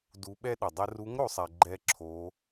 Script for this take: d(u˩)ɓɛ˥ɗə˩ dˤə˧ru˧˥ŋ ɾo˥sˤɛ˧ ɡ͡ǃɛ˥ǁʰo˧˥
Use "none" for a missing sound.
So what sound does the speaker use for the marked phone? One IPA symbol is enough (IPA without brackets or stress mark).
u˧˥